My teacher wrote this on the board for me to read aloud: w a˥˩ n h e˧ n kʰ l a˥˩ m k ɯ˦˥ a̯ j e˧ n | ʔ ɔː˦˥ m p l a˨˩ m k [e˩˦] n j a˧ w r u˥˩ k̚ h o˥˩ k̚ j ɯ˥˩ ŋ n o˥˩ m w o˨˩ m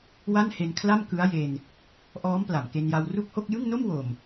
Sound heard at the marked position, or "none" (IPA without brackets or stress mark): e˧